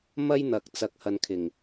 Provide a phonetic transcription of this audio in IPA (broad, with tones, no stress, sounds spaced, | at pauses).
m ɐ˥ j n̪ ɐ˨ k̚ t͡s ɐ˨˥ k̚ h ɐ˨ n kʰ ɪ˨˩ ŋ